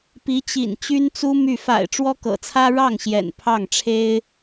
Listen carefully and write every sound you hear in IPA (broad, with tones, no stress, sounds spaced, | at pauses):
p i˧˥ t͡ɕ ḭ˨˩ n t͡ɕ y˥ n t͡s u˥ m y˥˩ f a̰˨˩ ɪ̯ ʈ͡ʂ w ɔ˥ k ɤ̰˨˩ t͡sʰ ä˥ ɻ ɑ˥˩ ŋ ɕ j ɛ̰˨˩ n pʰ ɑ˥˩ ŋ ʈ͡ʂʰ e˥ ɪ̯